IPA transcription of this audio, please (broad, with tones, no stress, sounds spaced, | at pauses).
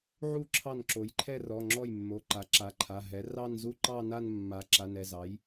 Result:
ʕ u˥˩ ǁʰ ɑ˥˩ n ǁ o˩˥ j ǃʰ ɛ˥˧ r ɔ˩˧˩ ŋ͡ǁ ɔ˥˩ j mː o˩˧˩ ǃ a˩˥ ǁ a˩˧˩ ǃʰ a˩˧˩ ɦ ɛ˩˥ r ɑ˥˧ n z u˥˧ ǃ ɑ˥˧ n a˥˧ n mː a˩˥ ǁ a˩˧˩ n ɛ˩˧˩ z ɑ˩˥ j